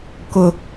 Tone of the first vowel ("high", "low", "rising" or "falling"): high